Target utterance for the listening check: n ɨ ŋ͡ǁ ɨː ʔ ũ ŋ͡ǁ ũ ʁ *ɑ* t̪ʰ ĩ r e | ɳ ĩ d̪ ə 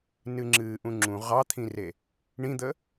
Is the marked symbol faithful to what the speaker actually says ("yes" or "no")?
yes